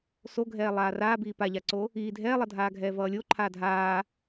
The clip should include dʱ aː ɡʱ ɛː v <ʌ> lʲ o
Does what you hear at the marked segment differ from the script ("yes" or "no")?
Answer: yes